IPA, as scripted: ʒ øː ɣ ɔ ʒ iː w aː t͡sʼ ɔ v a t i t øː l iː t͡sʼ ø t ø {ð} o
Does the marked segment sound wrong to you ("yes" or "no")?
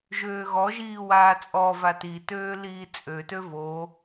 yes